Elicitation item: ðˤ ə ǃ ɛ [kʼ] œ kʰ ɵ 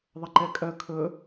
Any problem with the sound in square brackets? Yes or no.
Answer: no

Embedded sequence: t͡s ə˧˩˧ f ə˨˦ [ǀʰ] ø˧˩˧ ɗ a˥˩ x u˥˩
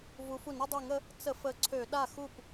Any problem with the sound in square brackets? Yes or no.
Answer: no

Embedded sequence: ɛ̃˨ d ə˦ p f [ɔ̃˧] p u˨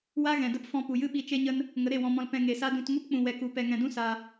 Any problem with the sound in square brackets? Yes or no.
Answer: no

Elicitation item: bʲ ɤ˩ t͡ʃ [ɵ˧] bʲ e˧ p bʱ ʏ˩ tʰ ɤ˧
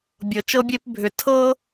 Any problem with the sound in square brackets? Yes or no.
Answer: yes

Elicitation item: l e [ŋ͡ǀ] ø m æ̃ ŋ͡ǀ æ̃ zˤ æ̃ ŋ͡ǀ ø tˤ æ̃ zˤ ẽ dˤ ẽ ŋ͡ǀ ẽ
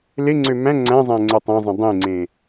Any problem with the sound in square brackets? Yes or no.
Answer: no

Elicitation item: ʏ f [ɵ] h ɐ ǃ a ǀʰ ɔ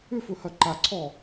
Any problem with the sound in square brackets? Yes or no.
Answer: no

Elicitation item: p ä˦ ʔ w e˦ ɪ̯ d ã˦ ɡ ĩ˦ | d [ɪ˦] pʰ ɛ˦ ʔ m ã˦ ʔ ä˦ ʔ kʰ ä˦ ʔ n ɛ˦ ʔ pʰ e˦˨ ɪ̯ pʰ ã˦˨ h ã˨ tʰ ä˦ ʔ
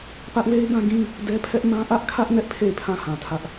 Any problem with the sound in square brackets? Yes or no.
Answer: yes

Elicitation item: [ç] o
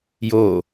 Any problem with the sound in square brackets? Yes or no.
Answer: yes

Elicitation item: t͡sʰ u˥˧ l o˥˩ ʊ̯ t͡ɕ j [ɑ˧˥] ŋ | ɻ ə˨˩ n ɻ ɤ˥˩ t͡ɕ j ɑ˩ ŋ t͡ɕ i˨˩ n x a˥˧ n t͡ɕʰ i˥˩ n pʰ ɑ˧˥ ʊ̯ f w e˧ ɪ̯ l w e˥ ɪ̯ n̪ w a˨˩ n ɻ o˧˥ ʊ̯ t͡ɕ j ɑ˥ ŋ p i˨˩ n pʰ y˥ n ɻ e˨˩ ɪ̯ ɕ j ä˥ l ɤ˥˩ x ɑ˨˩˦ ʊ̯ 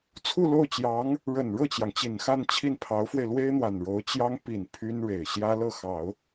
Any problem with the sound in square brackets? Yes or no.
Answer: no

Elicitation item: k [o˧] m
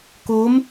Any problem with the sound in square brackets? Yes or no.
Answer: yes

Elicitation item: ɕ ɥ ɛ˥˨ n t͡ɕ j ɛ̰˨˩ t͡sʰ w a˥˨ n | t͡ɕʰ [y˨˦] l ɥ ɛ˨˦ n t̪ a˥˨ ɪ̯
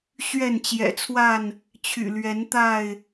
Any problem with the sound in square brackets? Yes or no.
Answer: yes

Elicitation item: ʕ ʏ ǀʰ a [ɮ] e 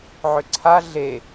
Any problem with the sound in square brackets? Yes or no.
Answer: no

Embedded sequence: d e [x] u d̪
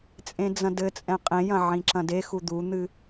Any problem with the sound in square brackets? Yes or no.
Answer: no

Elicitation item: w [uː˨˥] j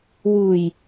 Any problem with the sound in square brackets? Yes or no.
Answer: yes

